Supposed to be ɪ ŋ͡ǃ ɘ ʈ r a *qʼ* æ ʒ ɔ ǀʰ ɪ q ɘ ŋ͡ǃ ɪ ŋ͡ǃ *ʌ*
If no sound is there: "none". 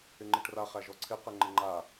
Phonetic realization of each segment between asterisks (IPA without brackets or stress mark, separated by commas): χ, a